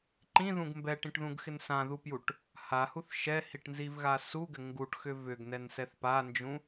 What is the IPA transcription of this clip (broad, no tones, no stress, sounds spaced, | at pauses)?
ǃ ĩ ð ũ ɡ m b ɛ ʈ ĩ ʈ ð ũ ɡ x ɪ n s ã ð u p j u ʈ | h a h u θ ʃ ɛ h i ʈ n z i v ɣ a s u ɡ ɘ ŋ ɡ u ʈ x ʏ v ʏ ɡ n ɛ n s ɛ θ p a n d͡ʒ ũ